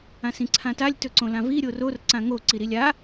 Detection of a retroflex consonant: absent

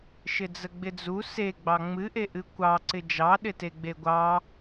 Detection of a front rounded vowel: absent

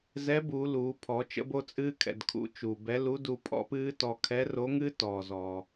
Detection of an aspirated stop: present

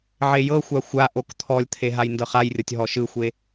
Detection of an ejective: absent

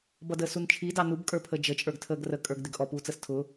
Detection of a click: absent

